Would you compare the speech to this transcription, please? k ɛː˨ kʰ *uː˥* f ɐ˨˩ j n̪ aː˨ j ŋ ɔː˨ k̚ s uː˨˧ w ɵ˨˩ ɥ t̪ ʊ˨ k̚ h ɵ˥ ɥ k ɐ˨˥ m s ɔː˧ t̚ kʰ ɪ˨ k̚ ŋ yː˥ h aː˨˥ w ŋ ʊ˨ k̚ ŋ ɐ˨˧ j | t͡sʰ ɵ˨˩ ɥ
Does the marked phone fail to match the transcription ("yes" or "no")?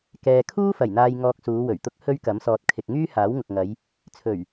no